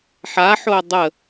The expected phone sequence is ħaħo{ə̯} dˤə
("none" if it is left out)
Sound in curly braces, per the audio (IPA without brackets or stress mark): ə̯